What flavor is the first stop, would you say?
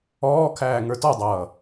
aspirated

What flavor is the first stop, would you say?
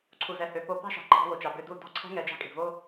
click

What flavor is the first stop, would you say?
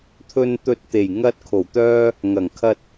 aspirated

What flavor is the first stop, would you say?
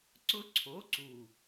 click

